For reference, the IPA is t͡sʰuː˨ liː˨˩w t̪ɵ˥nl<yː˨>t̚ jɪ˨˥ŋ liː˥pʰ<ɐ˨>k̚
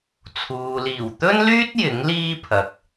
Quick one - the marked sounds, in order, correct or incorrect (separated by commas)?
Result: incorrect, correct